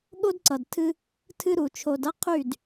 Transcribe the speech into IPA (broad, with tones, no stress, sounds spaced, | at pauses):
ɠ o˦ d ǀ ʌ˨ d tʰ ɨ˦ | tʰ ɨ˦ ɾ u˨ t͡ʃʰ o˨ d ʌ˦ qʰ y˦˨ d